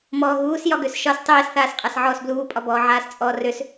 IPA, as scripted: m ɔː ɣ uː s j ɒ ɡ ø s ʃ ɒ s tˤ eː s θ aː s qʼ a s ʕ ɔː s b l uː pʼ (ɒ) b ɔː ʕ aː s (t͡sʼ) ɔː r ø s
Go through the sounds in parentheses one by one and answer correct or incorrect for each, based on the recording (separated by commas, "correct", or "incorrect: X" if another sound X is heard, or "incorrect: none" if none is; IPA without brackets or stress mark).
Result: correct, correct